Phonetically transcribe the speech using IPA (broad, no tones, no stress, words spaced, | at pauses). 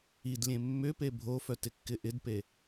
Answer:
id lʲẽmːʏpe bʱofœt ɪkːɪʔɪdpe